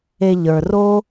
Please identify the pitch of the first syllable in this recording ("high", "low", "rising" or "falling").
low